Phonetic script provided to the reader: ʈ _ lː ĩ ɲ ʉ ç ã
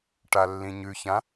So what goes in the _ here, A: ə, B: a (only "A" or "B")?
B